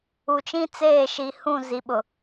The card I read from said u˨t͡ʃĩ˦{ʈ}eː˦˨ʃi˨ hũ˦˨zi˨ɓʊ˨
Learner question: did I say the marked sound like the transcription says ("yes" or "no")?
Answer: no